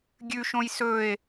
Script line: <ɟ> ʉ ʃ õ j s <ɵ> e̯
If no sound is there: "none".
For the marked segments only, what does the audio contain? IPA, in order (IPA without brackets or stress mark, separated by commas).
ɡʲ, ɵ